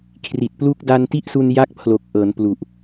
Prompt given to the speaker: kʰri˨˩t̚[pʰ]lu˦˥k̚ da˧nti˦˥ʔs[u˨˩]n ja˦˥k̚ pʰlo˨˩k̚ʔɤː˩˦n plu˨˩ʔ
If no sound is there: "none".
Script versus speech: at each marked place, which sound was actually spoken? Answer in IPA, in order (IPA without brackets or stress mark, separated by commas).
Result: p, u˧